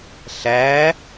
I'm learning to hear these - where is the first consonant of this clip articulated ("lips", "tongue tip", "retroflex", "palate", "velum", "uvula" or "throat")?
tongue tip